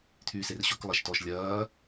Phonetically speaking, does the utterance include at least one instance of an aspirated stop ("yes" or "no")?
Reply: yes